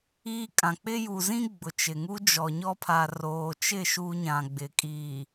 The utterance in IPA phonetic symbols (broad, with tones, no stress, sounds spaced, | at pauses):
iː˦ kʼ ã˨ k͡p ɪ˦ j u˨ z ĩ˦ ɡ͡b ʊ˨ t͡ʃ ɪ˨ ŋ u˦ d͡ʒ ɔ˨ ɲ ɔ˦ pʰ a˨ r oː˨ t͡ʃ ɪ˦˨ ʃ u˦ ɲ ã˨ ɡ͡b ɪ˨ kʼ iː˨